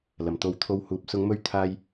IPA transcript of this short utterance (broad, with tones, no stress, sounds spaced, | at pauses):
l ɐ˨˩ m t̪ o˨˧ w t̪ʰ o˧ w h uː˨ p̚ s ʊ˨˧ ŋ m ɵ˧ ɥ t̪ʰ aː˧ j